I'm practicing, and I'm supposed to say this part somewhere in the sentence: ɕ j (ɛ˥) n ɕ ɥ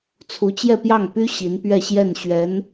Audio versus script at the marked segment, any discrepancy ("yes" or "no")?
yes